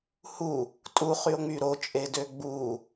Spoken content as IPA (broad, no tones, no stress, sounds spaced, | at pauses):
h u | tʼ u χ y o̯ ŋ͡m y ɾ o t͡ʃʼ e d ø ɡ͡b u